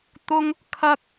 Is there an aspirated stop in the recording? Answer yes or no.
yes